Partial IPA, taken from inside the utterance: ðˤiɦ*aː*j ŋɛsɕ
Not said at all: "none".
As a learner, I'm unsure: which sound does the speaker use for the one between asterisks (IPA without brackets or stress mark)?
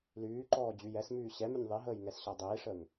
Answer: əː